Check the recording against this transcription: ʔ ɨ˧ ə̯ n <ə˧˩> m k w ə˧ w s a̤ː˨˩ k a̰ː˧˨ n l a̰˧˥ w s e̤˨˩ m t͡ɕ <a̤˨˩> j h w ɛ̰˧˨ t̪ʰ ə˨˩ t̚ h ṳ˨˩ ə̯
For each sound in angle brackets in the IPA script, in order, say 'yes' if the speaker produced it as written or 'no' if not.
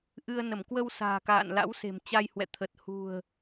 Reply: yes, no

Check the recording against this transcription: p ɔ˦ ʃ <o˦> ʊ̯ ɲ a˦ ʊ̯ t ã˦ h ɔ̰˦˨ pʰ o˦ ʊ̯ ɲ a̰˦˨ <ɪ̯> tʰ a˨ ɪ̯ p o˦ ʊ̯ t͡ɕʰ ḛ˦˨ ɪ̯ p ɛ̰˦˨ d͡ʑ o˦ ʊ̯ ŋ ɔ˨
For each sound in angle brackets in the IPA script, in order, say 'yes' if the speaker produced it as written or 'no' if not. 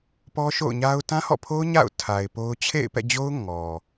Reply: no, no

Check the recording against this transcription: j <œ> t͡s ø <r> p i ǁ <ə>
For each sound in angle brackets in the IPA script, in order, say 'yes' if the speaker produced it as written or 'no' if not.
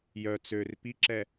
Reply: yes, yes, no

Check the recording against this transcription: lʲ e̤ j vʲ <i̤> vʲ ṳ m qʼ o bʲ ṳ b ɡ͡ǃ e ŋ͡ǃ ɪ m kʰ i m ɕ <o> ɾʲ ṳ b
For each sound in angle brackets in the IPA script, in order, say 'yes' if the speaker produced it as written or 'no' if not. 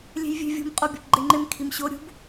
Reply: no, yes

